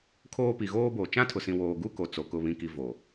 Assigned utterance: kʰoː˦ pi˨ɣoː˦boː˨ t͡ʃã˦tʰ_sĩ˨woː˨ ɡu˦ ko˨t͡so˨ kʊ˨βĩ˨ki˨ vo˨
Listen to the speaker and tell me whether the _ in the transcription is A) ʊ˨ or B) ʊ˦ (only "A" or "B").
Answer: A